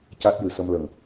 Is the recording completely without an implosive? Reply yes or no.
yes